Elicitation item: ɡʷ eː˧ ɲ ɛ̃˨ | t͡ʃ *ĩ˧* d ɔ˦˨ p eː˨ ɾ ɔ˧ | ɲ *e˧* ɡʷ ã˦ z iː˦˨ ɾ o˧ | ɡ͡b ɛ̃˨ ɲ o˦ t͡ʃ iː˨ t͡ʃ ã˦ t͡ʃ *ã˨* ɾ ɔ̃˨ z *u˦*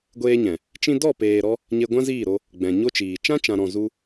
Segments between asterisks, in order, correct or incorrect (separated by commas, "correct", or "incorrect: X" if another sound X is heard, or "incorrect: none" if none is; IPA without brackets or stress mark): correct, correct, correct, correct